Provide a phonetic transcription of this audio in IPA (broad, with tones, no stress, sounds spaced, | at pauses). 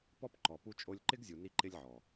p ɔ˦ p ǃ ɔ˨ p u˧ t͡ʃʼ o˧ lʲ ǃ ɪ˦ ɡ zʲ u˨ n i˧ ǃ ɪ˧ lʲ ʕ ɔ˨